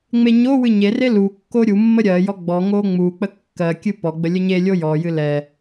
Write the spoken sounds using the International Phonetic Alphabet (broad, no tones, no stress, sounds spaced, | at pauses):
ŋ͡m e ɲ o w ɨ ɲ e r e l u kː o ɾʲ u mː ə ɾʲ ɜ j ɔ ɡ͡b ɔ ŋ o ŋ͡m u k͡p ə kː ɜ kʲ ɨ p ɔ ɡ͡b ə lʲ ə ɲ e lʲ o j ɔ j ɨ l ɛ